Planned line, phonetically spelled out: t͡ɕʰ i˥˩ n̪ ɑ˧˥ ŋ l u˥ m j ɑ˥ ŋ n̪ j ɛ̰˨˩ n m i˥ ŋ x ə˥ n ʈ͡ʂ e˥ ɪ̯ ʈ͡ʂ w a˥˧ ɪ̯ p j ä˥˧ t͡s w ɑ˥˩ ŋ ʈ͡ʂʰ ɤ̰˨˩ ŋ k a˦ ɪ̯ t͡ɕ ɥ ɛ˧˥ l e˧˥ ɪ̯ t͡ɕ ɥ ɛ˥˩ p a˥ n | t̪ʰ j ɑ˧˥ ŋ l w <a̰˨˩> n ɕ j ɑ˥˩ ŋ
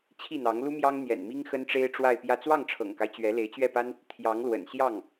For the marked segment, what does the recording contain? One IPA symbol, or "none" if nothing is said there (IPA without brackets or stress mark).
ə̰˨˩